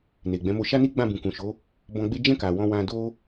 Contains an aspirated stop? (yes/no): no